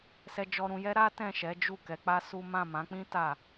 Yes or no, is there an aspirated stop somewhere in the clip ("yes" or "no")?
no